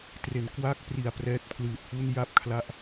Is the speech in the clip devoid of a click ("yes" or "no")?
yes